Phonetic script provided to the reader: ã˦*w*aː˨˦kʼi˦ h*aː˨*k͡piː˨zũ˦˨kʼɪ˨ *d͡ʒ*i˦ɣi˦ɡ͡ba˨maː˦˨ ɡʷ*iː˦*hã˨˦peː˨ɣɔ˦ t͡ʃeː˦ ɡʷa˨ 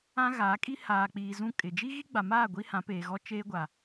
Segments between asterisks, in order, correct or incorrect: incorrect, correct, correct, incorrect

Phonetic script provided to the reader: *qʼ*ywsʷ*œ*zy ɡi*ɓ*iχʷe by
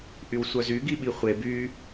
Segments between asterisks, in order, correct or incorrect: incorrect, correct, correct

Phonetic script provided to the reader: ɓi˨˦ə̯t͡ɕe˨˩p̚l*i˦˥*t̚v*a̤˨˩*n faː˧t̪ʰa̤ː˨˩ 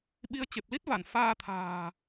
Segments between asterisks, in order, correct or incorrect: correct, incorrect

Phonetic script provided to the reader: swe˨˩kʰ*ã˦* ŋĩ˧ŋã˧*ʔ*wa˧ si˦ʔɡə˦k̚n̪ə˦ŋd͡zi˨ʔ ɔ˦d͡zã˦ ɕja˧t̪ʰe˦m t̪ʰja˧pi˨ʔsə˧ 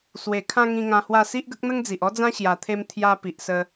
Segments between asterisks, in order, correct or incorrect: incorrect, incorrect

